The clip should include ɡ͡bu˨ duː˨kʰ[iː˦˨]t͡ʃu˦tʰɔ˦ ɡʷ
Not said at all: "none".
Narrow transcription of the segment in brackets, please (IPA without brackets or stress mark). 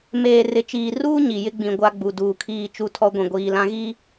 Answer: iː˦˨